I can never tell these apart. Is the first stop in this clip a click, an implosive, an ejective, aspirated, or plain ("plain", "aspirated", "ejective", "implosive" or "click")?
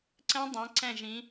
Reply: click